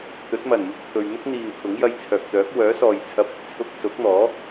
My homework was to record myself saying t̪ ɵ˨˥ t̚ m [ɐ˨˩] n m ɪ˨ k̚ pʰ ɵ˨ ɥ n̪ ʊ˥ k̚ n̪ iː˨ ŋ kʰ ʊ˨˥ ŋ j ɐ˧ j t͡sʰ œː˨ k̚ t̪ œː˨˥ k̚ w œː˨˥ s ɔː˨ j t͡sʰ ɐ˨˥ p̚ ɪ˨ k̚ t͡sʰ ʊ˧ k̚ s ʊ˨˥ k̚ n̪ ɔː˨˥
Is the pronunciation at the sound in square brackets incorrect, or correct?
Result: correct